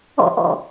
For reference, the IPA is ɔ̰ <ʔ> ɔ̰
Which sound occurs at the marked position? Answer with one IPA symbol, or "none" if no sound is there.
ʔ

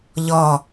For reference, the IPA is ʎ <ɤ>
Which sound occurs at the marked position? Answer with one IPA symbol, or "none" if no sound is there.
ɔ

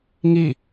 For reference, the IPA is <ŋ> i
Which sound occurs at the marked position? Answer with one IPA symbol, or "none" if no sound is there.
ŋ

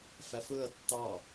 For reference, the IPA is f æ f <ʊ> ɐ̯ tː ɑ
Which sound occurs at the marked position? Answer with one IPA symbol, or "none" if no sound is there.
ɵ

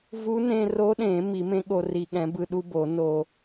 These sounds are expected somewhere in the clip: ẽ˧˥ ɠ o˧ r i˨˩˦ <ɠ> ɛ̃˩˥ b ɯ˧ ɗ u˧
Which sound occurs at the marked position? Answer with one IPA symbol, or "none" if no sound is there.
ɠ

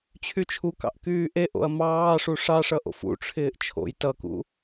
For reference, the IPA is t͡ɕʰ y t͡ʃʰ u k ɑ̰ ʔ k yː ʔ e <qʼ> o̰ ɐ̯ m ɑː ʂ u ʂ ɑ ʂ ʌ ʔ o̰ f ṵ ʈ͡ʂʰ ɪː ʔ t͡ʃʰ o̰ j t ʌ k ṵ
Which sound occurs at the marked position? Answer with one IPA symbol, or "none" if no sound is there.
ʔ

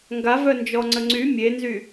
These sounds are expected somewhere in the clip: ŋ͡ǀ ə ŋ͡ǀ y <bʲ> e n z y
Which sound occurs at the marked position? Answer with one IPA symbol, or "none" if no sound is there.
mʲ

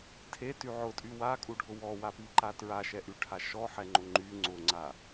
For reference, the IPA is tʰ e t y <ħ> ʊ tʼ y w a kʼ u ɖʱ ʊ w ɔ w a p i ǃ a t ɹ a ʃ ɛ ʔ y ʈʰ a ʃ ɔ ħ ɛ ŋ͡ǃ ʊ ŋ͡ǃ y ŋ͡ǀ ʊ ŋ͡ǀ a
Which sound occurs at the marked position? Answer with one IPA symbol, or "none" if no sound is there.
ʕ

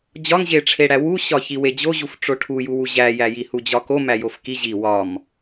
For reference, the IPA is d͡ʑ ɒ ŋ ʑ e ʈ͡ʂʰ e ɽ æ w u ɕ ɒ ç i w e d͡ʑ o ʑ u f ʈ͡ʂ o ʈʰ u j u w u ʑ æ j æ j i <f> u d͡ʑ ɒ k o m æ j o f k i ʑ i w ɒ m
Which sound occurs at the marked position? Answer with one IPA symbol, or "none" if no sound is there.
h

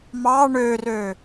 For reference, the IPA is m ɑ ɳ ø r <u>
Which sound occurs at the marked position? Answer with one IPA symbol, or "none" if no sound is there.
ø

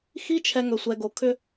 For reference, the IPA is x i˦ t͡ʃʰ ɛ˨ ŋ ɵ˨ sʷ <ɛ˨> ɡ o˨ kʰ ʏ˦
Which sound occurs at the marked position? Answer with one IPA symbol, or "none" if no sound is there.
ɛ˨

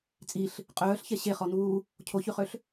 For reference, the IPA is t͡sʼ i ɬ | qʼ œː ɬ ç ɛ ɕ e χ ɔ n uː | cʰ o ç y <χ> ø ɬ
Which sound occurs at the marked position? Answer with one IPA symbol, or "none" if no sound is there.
χ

